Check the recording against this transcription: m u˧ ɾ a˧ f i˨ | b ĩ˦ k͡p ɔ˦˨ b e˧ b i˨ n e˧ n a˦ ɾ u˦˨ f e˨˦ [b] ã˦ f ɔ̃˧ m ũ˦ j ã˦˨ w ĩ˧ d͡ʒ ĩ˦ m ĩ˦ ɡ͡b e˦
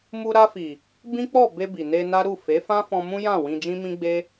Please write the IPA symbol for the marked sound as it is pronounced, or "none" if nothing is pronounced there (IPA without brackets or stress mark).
f